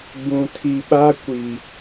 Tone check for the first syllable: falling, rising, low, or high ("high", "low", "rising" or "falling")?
low